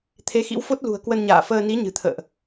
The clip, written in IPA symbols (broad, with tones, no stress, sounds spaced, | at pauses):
t̪ʰ e˨˦ x ḭ˧˥ w f o˦˥ t̚ l ṳ˨˩ ə̯ k w ə˧ n ɲ a̰ː˧˨ f əː˧ n i˨˦ ɲ ɨ̤˨˩ t̪ʰ ə̰ː˧˨ ʔ